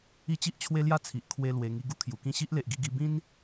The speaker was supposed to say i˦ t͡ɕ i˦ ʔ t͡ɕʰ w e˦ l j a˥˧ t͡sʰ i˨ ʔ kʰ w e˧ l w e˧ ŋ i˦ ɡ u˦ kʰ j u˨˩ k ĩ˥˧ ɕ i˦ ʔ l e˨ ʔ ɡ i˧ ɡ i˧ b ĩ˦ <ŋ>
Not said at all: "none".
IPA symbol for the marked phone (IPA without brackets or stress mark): n